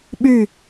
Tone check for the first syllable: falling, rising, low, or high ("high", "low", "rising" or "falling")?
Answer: falling